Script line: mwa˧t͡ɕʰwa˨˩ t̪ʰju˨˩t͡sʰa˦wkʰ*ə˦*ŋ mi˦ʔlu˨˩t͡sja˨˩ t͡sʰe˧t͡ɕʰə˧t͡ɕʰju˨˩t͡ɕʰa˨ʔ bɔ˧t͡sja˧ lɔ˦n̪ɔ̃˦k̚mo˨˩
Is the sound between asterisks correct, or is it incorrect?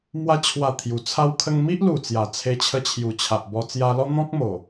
correct